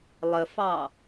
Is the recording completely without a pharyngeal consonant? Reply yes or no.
yes